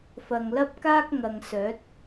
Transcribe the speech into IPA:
f ɐ˨ ŋ l ɐ˥ p̚ k aː˥ k̚ ŋ ɐ˨ ŋ s œː˨˥ t̚

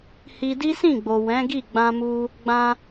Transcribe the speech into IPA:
h i˧ d i˦ s ĩ˦˨ ɡ͡b o˨ w ɛ̃˨˦ ɡ i˦˨ ɡ͡b ã˧ m u˧ | ɡ͡b ã˧

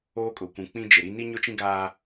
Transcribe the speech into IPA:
oː˦ kʼ ʊ˨ kʷ ũ˨ k͡p ĩ˦ d͡ʒ ɪ˨ ɾ i˦ n i˦ ɲ ʊ˦ t͡ʃ ĩ˦ ɡ aː˦

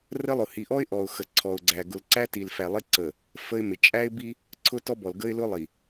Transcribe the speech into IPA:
r ə˦ lˠ ʊ˨ h i˨ ʔ ɔ˦ ɪ̯ ʔ ɔ˨ ʊ̯ x ə˨ ǀʰ ɔ˨ ʊ̯ ɡ͡ǀ æ˨ ɡ ʊ˨ l ǀ æ˦ t i˨ l f æ˨ lˠ ɪ˦ ǀ ə˨ | f ə˦ ɪ̯ m ɪ˨ t͡ʃʼ æ˦ ɪ̯ b i˦ | ǀʰ ʊ˦ t ɔ˦ b ɔ˨ l ɡ ə˦ ɪ̯ l ʊ˦ lˠ i˨

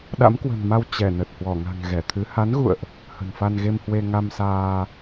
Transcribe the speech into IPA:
ɗ a̰˧˥ m k w ə̤˨˩ n m a˧ w t͡ɕ ɛ˧˩ n ə˨˩ t̚ h w ɔ˧˩ ŋ a̤˨˩ ŋ ɣ ɛ˧˩ t̪ʰ ɨ˨˦ h a˨˦ n ɣ ṵ˧˨ ə̯ ʔ | h ə̤˨˩ n f a˧ n ɣ e˧ m h w e˧ ŋ a˧ m s aː˧

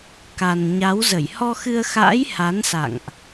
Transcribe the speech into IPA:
k a˨˩ n ɲ a˨˦ w z ə˧˩ j h ɔ˧ x ɨ˧ ə̯ x a̰ː˧˥ j h a˨˦ n s a̰˧˨ ŋ ʔ

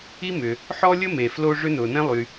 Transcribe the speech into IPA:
i˥ m ʏ˩ | ħ ɔ˥ lʲ ə˥ m e˩ f l o˥ ʐ ʏ˥ n ʊː˩ n ɛ̃˥ lˠ y˩

